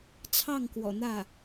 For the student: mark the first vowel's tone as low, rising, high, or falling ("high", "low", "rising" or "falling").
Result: falling